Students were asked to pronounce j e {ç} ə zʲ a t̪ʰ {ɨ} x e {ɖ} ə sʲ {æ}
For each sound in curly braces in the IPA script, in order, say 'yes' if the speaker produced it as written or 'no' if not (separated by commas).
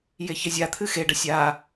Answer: yes, yes, yes, no